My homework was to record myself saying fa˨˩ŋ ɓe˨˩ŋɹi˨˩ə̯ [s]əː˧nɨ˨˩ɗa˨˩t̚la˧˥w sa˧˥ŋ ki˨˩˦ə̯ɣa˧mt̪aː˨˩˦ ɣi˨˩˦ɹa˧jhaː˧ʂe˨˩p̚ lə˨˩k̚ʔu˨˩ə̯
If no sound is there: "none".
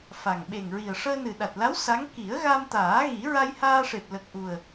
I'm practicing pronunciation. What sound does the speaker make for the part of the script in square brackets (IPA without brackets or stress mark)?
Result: ʂ